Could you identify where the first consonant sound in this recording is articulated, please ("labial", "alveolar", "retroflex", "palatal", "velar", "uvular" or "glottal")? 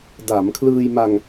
alveolar